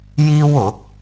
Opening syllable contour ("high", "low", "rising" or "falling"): high